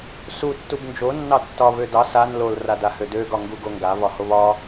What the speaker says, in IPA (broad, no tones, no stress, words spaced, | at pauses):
su tːubnd͡ʒo nːɑtːɒ βødɑ san lol radahødø ɡɒŋɡuɡoŋɡa βɒhoβɒ